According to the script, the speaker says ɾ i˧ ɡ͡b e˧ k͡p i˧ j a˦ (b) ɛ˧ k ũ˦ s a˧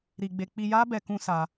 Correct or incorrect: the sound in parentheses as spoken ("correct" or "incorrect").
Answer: correct